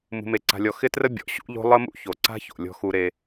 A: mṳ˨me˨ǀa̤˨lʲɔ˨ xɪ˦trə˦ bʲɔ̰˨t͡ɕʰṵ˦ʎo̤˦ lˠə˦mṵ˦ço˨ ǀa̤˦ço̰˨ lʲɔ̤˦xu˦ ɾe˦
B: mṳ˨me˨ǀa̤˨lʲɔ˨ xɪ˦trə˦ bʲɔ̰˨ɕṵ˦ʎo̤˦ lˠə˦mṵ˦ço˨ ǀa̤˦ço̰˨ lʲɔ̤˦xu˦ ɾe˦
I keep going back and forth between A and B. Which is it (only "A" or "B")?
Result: B